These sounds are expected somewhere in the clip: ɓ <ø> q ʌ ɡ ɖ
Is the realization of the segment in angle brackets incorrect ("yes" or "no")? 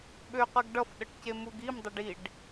no